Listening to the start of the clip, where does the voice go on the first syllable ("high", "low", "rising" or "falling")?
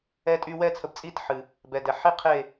high